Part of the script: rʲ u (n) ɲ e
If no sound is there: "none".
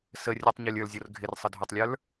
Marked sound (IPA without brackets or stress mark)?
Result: tˤ